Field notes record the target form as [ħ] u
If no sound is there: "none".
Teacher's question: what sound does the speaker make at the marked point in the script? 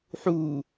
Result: ħ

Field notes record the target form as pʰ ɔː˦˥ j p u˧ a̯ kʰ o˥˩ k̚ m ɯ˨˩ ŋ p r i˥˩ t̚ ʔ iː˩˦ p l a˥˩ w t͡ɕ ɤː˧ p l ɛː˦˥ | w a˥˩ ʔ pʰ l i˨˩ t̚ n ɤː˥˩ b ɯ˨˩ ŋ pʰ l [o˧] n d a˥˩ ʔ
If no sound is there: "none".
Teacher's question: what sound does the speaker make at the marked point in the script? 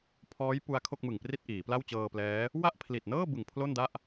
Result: o˥˩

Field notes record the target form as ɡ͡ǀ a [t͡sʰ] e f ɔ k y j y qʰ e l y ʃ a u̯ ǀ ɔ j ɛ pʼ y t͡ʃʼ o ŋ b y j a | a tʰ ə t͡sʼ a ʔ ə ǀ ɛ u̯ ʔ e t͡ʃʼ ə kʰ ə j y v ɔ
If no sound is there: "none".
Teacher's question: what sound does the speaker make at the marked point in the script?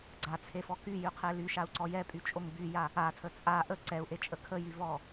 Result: t͡sʰ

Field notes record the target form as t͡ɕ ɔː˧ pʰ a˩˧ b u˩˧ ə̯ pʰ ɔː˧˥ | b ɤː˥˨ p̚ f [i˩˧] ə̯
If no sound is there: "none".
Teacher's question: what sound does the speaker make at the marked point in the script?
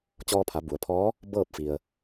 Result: i˩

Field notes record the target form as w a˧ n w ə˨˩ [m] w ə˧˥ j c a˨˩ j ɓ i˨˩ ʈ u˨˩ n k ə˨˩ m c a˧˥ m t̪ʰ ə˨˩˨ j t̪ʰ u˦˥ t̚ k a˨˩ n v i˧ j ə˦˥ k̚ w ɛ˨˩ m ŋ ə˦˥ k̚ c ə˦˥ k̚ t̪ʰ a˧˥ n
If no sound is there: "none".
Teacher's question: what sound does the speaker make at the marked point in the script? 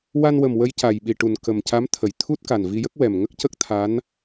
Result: m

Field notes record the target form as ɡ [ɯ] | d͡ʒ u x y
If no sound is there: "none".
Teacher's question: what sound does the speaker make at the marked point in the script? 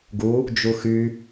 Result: u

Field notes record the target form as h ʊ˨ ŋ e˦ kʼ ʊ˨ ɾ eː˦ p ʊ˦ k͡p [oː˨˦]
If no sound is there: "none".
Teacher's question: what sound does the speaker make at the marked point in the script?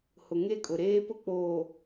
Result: oː˨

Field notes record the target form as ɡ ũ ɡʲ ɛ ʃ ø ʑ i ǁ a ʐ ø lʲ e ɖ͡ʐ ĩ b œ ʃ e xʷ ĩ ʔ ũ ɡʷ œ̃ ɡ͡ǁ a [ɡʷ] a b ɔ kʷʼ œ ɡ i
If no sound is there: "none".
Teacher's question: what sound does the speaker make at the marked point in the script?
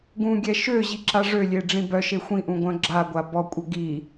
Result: ɡʷ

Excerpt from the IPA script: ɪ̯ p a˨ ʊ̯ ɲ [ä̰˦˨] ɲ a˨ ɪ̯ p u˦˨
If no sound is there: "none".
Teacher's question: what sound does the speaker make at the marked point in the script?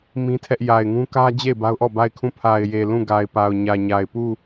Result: ä˨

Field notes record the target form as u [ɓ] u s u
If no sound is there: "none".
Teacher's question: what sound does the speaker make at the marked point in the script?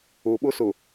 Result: ɓ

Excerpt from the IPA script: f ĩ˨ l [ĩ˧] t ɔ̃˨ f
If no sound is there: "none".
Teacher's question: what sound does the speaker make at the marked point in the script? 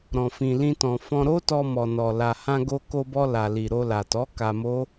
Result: ĩ˧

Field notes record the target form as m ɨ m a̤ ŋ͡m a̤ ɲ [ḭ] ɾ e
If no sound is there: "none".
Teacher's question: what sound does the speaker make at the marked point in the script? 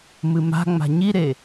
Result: i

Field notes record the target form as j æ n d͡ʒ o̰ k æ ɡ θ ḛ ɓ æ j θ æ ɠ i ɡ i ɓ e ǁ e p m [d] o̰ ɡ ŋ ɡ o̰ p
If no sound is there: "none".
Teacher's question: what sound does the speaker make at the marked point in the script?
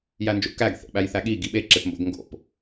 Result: b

